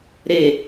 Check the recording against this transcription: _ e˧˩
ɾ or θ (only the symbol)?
ɾ